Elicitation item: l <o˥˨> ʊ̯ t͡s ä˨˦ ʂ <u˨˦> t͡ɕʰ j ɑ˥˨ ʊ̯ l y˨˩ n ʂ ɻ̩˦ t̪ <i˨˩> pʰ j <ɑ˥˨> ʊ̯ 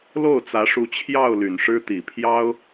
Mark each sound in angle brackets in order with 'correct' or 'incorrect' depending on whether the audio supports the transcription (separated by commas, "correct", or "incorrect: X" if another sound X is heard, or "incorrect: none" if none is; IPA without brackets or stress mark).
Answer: correct, correct, correct, incorrect: ɑ˦